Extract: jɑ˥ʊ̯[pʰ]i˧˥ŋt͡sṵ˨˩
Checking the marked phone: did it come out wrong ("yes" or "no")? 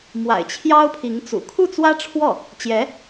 no